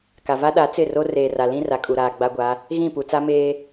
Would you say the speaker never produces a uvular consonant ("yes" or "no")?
yes